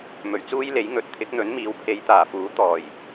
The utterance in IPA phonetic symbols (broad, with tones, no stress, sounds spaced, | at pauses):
m ɵ˨˩ ɥ t͡s uː˥ j l e˨˥ j ŋ ɵ˨˥ t̚ t̪ʰ ɪ˨˥ k̚ n̪ ɵ˨˥ n m iː˨˧ w pʰ e˨˧ j t̪ aː˨˩ f uː˨˥ t̪ ɔː˨˩ j